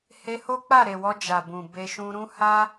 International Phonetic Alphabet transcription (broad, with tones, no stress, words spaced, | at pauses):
he˧ho˦k͡pa˦˨ ɾe˨wɔ˧ d͡ʒa˨bũ˨be˧ ʃũ˧ɾũ˦ ha˦